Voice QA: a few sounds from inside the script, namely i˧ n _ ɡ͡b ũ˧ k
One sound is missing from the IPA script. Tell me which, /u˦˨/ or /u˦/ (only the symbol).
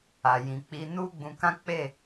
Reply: u˦